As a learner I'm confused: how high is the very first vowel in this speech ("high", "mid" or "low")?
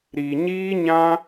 high